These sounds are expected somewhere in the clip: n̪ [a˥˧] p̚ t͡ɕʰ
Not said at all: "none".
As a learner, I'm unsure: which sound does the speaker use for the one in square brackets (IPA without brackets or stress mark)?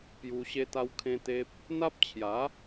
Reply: a˦